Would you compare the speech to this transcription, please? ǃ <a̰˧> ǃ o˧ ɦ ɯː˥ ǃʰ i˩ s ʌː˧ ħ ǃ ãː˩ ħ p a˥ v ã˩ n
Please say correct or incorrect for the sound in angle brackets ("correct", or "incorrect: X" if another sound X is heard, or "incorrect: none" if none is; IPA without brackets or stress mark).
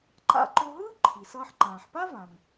correct